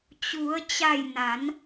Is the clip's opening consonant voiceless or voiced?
voiceless